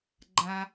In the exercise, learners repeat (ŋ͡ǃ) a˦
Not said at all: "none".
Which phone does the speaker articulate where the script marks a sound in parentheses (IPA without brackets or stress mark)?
ɡ͡ǃ